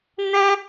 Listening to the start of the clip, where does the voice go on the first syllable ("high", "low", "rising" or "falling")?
high